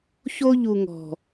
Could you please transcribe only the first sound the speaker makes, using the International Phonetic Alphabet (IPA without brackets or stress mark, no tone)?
ç